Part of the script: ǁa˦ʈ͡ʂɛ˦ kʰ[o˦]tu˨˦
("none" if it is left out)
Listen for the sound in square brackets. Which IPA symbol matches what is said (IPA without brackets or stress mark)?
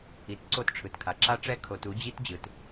o˨